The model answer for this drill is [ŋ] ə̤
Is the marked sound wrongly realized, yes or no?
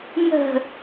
no